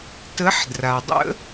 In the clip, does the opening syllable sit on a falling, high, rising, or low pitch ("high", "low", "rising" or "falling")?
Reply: rising